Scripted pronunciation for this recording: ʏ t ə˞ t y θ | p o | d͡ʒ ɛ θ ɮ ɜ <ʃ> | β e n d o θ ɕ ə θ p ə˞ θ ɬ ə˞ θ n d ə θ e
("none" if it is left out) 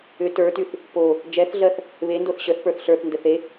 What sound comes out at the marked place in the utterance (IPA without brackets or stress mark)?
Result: θ